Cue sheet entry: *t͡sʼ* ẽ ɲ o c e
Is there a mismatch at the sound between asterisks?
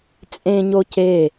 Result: no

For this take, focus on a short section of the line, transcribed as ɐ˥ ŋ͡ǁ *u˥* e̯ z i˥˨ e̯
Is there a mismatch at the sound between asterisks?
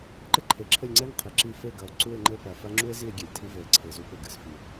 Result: no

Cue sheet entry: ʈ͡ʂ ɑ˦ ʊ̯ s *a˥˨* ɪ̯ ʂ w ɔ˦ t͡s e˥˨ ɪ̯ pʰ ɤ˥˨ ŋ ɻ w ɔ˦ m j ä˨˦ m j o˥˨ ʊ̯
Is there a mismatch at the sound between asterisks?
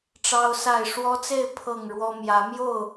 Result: no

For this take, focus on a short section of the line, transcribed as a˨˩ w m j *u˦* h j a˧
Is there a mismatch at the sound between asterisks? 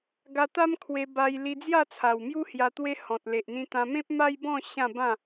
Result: no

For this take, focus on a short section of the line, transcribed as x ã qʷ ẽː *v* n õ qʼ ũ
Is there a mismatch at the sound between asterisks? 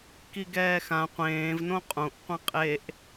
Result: no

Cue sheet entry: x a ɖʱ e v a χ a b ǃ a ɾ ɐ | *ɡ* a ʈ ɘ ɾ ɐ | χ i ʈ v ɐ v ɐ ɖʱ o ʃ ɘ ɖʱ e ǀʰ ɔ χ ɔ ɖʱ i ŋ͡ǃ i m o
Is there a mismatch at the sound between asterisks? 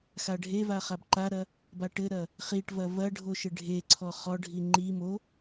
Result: yes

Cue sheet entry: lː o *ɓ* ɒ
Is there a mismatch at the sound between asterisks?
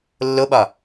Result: no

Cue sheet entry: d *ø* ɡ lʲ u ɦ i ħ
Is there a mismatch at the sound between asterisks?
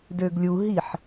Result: no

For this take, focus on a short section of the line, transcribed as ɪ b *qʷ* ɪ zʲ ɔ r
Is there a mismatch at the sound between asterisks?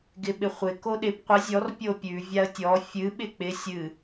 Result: no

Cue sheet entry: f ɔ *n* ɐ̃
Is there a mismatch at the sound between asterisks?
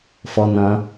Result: no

